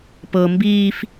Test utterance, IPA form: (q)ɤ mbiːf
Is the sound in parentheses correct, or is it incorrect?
incorrect